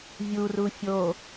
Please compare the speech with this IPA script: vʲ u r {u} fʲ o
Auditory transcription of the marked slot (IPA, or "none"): u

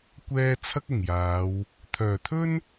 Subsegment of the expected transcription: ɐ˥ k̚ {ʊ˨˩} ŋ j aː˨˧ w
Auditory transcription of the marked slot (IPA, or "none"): ʊ˨˩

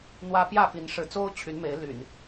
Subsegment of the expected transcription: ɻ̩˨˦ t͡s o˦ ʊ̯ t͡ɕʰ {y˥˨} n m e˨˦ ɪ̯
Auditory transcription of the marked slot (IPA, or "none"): y˨˦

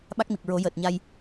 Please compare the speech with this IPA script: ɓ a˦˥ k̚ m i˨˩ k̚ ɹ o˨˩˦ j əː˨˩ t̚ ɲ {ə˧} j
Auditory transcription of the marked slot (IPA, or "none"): a˧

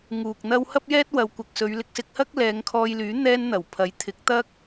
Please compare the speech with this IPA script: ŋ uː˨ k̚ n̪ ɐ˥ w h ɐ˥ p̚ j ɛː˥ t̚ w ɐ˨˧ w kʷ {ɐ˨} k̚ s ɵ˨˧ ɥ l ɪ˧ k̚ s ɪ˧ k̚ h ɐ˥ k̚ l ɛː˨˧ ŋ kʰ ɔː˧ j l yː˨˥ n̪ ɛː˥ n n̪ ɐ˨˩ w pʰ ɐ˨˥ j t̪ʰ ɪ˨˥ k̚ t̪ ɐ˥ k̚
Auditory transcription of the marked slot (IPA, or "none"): ɐ˨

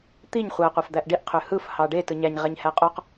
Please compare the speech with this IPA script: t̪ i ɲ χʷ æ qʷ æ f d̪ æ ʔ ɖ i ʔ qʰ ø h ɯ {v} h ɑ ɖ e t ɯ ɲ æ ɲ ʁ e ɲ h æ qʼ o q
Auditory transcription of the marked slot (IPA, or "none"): f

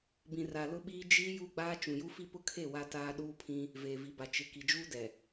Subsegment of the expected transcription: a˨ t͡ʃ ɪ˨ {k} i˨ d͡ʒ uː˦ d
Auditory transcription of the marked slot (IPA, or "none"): k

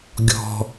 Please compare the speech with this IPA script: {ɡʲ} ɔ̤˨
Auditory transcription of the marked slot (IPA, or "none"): ɡʲ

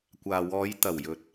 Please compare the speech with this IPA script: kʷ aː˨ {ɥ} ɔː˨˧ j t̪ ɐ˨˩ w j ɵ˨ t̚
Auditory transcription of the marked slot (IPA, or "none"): w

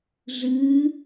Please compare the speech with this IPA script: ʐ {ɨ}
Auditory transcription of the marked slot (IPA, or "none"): ɨ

